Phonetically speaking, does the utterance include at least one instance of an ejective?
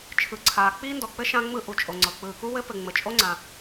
yes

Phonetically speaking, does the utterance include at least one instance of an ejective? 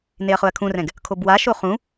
no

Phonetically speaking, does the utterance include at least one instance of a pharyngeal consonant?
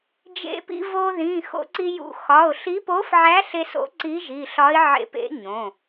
yes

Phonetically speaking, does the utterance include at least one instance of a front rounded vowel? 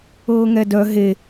yes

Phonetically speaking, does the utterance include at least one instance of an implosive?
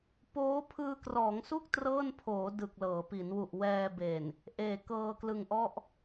no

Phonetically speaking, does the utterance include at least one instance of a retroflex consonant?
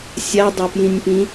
no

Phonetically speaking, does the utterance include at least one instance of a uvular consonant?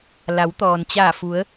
no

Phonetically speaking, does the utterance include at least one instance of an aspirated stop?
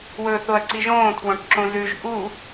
yes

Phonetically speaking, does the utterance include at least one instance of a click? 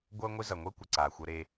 yes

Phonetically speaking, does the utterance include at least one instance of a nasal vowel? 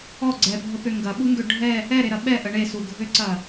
no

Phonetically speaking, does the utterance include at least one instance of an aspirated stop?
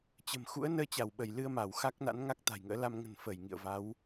no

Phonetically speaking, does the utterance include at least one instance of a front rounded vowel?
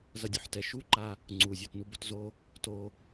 no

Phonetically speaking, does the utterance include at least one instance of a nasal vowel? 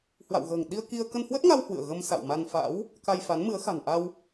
no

